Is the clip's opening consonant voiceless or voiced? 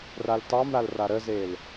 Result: voiced